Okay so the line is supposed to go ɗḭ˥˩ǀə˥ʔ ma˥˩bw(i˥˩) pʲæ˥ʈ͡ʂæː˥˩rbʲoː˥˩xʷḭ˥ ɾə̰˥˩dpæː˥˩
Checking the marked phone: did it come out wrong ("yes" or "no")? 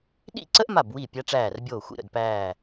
no